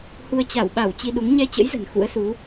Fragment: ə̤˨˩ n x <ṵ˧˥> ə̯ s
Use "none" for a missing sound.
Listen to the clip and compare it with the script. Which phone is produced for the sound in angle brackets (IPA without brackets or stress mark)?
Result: ṵ˧˥